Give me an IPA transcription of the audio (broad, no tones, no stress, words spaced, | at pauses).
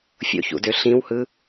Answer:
fʲo̰çṵdø ɬĩwhɯ